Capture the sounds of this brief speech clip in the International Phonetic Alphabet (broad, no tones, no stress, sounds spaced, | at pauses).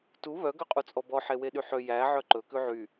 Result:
t u β œ ɡ œ qʼ u t͡sʼ ɔ b ɔ ħ e w e ɗ y ħ ø j æ ʕ œ ǃ ɵ k ʉ ʕ y